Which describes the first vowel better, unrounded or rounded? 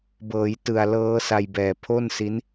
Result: unrounded